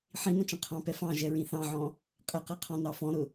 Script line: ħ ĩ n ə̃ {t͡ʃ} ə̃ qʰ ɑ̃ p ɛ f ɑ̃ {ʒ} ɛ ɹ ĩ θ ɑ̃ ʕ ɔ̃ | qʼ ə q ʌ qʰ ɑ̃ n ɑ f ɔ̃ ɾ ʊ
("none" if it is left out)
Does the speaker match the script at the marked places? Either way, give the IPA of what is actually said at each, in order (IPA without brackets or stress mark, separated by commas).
t͡ʃ, ʒ